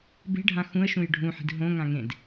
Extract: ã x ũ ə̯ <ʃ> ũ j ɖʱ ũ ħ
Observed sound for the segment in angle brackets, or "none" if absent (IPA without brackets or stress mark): ʃ